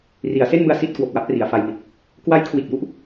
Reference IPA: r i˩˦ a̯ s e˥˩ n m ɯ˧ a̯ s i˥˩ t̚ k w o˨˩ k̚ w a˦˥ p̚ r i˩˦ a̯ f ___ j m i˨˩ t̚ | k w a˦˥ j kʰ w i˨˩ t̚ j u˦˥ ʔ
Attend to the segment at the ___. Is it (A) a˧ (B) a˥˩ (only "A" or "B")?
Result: A